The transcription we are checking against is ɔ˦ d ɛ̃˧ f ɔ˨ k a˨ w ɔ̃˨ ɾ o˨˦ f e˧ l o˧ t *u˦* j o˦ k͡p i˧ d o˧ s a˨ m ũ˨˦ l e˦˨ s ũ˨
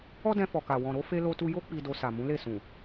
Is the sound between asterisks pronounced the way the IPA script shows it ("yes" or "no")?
no